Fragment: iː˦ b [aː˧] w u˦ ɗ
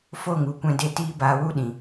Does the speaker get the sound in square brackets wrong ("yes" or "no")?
no